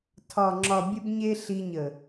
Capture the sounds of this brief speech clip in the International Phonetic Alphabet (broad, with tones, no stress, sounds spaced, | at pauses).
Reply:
tʰ ɒ˨ ŋ͡ǁ ɒ˨ bʲ ə˧ b ɲ e˦ ɬ i˧ ɲ ə˨